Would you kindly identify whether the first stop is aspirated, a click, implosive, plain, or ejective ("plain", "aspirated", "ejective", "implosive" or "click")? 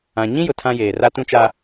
aspirated